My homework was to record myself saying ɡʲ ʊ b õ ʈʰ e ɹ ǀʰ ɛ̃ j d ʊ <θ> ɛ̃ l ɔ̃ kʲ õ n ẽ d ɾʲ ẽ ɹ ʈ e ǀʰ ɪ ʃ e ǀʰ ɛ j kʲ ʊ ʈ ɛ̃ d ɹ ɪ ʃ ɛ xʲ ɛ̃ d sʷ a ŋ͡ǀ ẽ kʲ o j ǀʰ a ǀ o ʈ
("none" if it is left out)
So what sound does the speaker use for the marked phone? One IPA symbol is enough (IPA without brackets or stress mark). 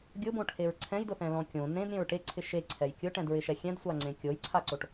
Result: θ